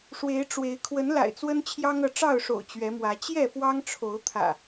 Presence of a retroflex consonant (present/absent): present